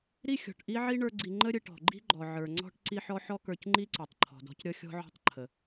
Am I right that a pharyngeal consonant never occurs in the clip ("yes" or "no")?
no